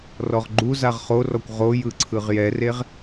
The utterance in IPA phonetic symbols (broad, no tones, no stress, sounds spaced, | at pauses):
r ɔ ʁ ɡ͡ǃ u z a ʁ χ o r ɔ kʷ ʁ o j ɯ ǀʰ ɯ ʁ j ɛ r e ʁ